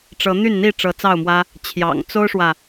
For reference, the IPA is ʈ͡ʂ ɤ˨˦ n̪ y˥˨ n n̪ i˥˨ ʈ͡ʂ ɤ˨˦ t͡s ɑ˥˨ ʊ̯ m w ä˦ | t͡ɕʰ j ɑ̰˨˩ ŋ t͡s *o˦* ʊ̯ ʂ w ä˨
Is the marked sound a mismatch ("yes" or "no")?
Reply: no